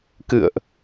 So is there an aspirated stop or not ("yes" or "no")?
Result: no